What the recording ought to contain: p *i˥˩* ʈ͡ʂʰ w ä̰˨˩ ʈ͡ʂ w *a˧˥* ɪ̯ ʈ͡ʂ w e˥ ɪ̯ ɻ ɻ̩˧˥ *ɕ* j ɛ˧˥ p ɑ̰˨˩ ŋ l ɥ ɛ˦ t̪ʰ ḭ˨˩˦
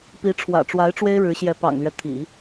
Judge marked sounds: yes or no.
no, yes, yes

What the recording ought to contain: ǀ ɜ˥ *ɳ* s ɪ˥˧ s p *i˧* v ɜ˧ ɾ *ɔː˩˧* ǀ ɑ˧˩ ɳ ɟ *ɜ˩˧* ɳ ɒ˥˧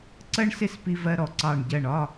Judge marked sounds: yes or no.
yes, yes, no, no

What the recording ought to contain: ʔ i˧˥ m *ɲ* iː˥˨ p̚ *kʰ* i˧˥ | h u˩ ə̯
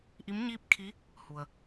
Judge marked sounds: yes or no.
yes, yes

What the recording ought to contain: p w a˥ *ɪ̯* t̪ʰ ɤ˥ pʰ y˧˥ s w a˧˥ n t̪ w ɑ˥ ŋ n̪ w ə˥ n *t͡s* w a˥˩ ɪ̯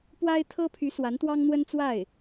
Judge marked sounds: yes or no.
yes, yes

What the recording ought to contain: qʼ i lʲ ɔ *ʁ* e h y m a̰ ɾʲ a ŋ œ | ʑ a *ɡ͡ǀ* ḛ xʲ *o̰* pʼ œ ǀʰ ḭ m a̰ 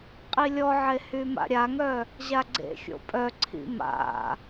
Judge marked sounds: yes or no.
no, yes, yes

